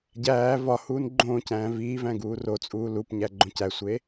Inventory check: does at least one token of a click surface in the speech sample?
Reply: yes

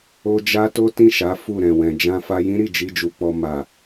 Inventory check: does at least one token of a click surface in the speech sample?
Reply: no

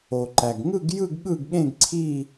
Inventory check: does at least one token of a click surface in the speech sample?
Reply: yes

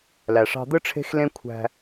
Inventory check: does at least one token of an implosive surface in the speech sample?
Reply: no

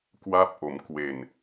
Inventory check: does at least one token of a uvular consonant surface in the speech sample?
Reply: no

